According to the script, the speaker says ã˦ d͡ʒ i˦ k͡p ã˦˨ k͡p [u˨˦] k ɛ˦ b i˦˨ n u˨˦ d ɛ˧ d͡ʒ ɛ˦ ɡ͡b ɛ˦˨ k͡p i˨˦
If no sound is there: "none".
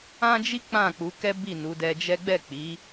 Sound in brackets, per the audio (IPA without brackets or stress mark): u˨˦